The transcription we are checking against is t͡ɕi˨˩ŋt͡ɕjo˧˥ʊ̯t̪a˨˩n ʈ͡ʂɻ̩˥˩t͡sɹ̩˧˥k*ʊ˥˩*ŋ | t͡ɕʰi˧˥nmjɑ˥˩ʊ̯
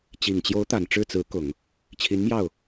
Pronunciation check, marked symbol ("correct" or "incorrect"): incorrect